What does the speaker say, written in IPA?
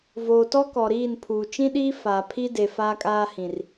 voː˨tɔ˦ kɔ˨ɾiː˦˨n pʰuː˨t͡ʃĩ˦ɗiː˦ faː˨pʰi˦ de˨ faː˦kʼaː˦hĩ˨r

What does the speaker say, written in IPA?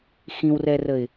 xĩwrɛrəɪ̯

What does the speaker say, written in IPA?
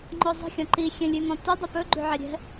ŋ͡ǃɔzˤə̤xʲɔ̃ ǃi xʲɛ̃lʲʉŋɔ̃tə dˤʉpɵ ɡ͡ǃʉʕɛɾʲɛ̤

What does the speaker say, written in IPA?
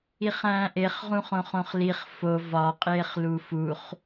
iχæ̃ːʔeχ ʁũχõχõχliχ fo vɒ qʼeːχlufuχ

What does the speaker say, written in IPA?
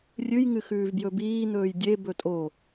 rʲɨjŋɨ xʉːvbjɵbiːn̪ɵːj dʲe bɵtʼo

